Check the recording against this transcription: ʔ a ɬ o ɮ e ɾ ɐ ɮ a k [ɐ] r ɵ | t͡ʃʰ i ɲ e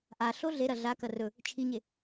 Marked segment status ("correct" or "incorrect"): correct